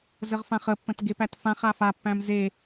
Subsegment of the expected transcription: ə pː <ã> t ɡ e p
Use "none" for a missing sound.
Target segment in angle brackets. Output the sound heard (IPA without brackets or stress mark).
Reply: ə̃